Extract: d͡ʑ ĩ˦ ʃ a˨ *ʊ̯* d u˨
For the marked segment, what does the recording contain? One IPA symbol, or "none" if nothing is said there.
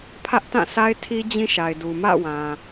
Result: ɪ̯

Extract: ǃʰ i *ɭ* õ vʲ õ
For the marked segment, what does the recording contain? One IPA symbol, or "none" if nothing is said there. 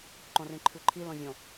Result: l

